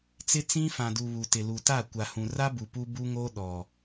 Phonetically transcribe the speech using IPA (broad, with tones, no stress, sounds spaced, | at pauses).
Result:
t͡s ɪ˦ t͡s ĩ˦ f ã˨ d u˨ β u˨ t ɪ˨ l u˨ t a˦˨ kʷ a˨ h ũ˨ r a˦ b u˨ p u˦ b u˦ ŋ oː˦ ɗ ɔ˨